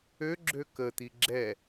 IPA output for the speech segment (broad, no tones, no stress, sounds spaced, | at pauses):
ø ɡ͡ǁ ø k ə t̪ i ɡ͡ǁ ɛ